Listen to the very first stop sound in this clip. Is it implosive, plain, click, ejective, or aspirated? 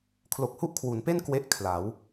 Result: aspirated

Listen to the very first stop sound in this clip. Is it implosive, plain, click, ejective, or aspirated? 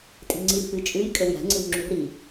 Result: ejective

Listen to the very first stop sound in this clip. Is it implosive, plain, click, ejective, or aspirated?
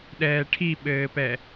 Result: implosive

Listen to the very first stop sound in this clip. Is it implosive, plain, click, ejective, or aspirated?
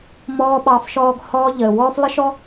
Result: implosive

